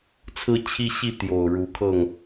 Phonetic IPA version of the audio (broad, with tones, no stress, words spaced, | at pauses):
t͡sʰɹ̩˦t͡ɕʰi˦ɕi˥˨ t̪jo˨˩ʊ̯ɻu˨˦kʰɤ˥˨ŋ